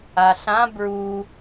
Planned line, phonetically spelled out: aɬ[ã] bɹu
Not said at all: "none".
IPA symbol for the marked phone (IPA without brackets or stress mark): ã